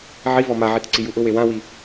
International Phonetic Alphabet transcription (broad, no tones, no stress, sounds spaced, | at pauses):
ʕ i v ɔ m a ʕ i t ǀ i j u ʔ ʊ w e w ã w i